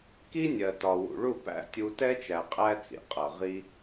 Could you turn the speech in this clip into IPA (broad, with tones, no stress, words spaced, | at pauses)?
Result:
ki˦nʲɜ˨ tɒ˨wṵ˨ ɭu˦˨ pæ̰˦ tʲu˧ tɛ˦t͡ʃæ˨ qʼæ˦t͡sḭ˨ qʼʌ˨ʁi˦